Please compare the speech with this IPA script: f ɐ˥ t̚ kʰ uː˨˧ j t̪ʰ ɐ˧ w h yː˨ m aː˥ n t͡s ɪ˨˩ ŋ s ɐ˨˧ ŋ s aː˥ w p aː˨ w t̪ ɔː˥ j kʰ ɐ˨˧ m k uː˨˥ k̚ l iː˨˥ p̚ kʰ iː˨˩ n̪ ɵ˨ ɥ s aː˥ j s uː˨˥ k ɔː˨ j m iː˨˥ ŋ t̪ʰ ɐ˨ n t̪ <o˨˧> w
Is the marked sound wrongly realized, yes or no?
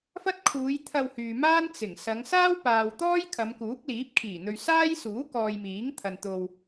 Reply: yes